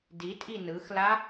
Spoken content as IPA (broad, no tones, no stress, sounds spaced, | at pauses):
d i tʼ i n ɯ x l a